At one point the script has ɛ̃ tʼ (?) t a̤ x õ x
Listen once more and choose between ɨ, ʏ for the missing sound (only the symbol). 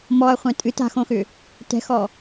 ɨ